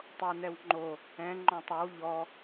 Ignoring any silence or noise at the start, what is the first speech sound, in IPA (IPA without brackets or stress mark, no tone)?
tˤ